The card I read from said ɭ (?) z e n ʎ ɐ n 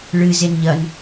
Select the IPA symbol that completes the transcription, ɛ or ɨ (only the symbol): ɨ